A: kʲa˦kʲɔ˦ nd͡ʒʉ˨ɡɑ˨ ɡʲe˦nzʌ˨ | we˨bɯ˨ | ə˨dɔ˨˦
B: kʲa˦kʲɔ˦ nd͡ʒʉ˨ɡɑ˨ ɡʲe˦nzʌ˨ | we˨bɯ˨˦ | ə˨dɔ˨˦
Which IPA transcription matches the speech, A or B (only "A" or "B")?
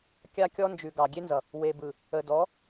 A